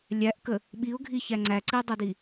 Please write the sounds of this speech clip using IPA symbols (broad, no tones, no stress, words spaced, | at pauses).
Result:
lʲæʔkə | ɓiʊ̯ɡʱiçæ ŋ͡ǀæǀidˤædi